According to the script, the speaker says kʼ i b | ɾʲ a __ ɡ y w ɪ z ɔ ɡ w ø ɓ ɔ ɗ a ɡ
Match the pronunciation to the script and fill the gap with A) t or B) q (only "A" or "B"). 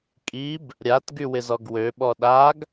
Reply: A